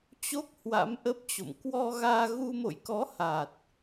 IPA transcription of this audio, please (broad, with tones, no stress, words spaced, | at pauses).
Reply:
t͡ɕo˦˥k̚ hwa̰˧˥mʔə˦˥p̚t͡ɕo̰˧˨m kwɔ˧ɣaː˧ɣu˧ mo̰˧˨jkɔ˨˦ ha˨˩t̚